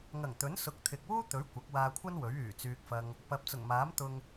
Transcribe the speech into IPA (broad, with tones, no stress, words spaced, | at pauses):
ŋɐ˨˩ŋt̪ɵ˨˥nsʊ˨˥k̚ t̪ʰɪ˨k̚wuː˥t̪ɵ˨˥ɥ kʷɐ˨˥k̚waː˧ kʷʰɐ˥n wɵ˨˥ɥyː˨˩ t͡syː˧k̚fɐ˧ŋ | pɐ˨˥p̚t͡sʊ˨˩ŋmaː˨˥m t̪ʊ˨ŋ